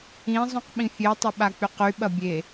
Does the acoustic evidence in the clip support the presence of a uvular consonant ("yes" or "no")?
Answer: yes